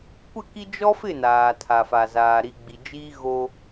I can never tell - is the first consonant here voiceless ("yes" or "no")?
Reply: yes